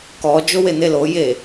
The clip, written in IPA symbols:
k ɔ d͡ʒ o w e n̪ e l o j e

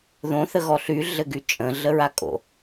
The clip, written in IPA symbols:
ð õ θ ə ɣ ɔ ɬ y ɮ ɘ ɡ y t͡ʃʼ ə̃ ɮ ə ɹ a kʼ o̰

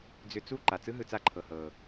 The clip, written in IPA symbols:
d͡z ʏ˧ t͡s u˦˨ ǃ a˨ t͡s ɯ˦ ɦ ɯ˨ t͡s a˧ ǃʰ ɤ˨ h ɤ˨

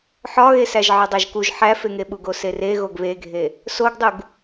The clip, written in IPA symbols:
ħ ɒ ɣ e s æ ʒ ʕ ɒ dˤ æ ʒ k u ʒ ħ æ f e ŋ e ɓ u ɡ o s e r e ɣ o ɡ β e ɡʱ e | s o ɡ dˤ u ɡ

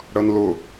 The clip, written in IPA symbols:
ɽ ʌ n l ʊ

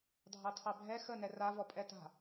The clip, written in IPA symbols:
dʱ ɑ tʰ ɑ bʱ ɛ x ə n ɛ r a v ɔ pʼ ɛ t a̤

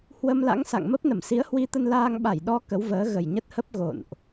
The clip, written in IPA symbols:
h w ə˧ m l a̰˧˥ ŋ s a̰˧˨ ŋ m ə˦˥ p̚ n ə˧˩ m s i˨˦ ə̯ h w i˧ t̪ ə˧ n l aː˧ ŋ ɓ a˧˩ j ɗ ɔ˧ k ə˨˦ w v əː˨˦ ɣ ə˨˩ j ɲ ə˦˥ t̚ h ə˦˥ p̚ ɣ o̰˧˨ n ʔ

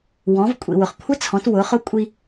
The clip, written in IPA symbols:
w ɔ̃˩˧ v kʷʼ ḭ˩ w ʊ˩ χ kʷʰ ɪ˧˥ t͡sʰ ɔ̃˩˧ t w ʊ˩˧ χ ʊ˧˥ kʷʼ i˧

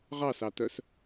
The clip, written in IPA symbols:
ʁ ɑ s ɑ t œ s

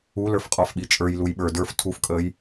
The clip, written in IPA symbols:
u l ə˞ f qʼ ɔ f ɓ i t͡ʃʼ ə˞ j l u j ɓ ə˞ d ə˞ f tʰ u f kʼ əː j

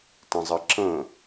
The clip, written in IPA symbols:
t ə̃ zˤ ə ǁ ə̃

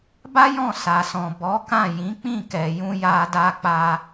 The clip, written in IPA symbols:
b a˦ j ɔ̃˦˨ s a˨ s ɔ̃˨ b ɔ˨˦ k ã˦˨ j ĩ˨˦ k͡p ĩ˦˨ k ɛ˨ j ũ˧ j a˧ d a˧ k͡p a˧

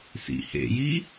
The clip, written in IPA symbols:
s ḭ h ḛ j i

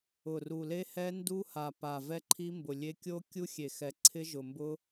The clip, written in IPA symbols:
ʊ˨˩ r u˨˩ l e˦˥ h ɛ˦˥ n d u˦˥ h a˨˩ p a˨˩ v ɛ˦˥ ǃʰ i˦˥ m b ʊ˨˩ lʲ e˦˥ kʲ o˦˥ kʲ u˦˥ xʲ e˨˩ x ɛ˨˩ ǀʰ ɪ˦˥ ʒ ʊ˨˩ m b ʊ˦˥

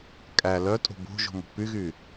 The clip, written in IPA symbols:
kʼ æ l œ tʼ o̤ b o̤ ʒ o̤ m ṳ p y ɣ y

